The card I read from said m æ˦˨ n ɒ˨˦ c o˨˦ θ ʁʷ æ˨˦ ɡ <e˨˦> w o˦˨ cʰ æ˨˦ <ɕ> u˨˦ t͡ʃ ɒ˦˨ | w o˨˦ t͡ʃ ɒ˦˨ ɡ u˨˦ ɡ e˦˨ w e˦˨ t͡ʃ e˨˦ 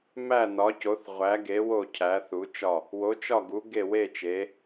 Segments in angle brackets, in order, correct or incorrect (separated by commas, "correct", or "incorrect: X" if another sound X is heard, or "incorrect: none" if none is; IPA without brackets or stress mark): correct, incorrect: θ